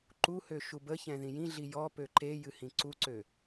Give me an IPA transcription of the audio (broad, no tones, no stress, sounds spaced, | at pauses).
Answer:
ǃ u h ø ʃ u b ə ç ɛ̃ ð ĩ j ĩ ɮ i j ɔ p ø ǃ e j ɨ h ĩ ǀ u ǀ ø